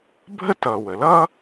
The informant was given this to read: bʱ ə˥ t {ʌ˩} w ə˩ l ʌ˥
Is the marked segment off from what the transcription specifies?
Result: no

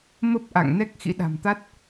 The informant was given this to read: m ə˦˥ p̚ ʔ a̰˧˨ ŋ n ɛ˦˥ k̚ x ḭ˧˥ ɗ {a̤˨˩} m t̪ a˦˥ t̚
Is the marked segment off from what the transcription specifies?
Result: no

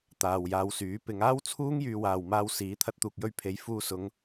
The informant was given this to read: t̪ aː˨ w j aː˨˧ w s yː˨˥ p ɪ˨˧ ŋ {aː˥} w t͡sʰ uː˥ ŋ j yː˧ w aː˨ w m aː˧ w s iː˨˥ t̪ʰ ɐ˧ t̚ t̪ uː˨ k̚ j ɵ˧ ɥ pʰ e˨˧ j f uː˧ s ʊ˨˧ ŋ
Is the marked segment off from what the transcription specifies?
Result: no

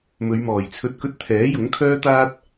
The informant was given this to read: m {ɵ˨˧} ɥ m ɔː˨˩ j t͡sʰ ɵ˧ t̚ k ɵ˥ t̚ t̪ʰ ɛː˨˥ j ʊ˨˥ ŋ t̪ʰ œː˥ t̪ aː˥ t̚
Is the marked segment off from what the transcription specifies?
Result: no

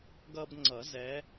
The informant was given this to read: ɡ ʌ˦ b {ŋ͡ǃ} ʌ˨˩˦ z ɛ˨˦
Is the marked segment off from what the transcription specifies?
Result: yes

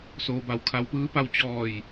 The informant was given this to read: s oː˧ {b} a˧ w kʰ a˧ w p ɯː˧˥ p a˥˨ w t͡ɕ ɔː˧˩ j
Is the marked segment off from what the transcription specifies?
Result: no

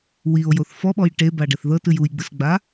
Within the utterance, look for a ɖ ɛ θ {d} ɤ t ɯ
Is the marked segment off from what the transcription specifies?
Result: yes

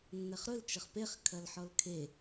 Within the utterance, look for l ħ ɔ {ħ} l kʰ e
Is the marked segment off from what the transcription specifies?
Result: yes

